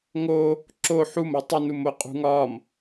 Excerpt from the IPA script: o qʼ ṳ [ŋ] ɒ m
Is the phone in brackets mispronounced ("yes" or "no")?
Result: no